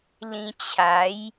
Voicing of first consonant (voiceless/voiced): voiced